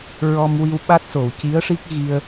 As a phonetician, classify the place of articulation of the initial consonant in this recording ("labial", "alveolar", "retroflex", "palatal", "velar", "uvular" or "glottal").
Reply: alveolar